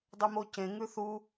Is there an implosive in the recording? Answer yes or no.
no